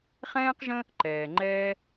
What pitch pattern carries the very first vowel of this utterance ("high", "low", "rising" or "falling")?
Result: high